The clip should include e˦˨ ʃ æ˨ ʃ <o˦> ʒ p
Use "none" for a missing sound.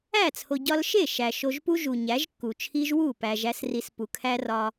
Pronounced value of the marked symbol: o˧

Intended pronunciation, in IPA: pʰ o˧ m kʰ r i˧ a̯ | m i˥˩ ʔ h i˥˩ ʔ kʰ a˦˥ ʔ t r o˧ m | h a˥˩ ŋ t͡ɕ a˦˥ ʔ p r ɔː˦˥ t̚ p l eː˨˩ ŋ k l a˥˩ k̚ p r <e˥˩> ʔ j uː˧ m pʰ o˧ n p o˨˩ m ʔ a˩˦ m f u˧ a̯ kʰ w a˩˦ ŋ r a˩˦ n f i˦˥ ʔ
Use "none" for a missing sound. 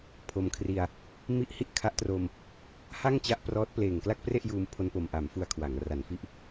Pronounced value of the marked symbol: e˥˩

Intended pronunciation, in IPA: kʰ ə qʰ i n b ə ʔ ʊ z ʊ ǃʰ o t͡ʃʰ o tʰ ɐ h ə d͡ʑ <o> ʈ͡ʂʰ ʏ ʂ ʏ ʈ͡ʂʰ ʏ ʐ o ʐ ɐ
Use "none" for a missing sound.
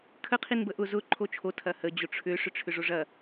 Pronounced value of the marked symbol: o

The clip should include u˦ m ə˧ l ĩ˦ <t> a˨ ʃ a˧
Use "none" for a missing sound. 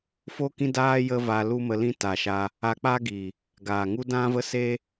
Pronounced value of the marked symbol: t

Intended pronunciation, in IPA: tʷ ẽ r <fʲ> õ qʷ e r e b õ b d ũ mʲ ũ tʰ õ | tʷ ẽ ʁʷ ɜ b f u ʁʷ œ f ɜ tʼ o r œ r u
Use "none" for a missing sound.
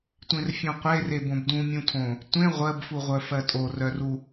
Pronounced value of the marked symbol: fʲ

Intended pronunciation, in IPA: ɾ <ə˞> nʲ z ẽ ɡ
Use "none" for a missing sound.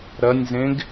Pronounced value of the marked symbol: ɐ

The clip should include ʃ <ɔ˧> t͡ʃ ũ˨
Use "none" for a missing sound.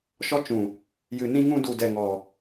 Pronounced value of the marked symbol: ɔ˧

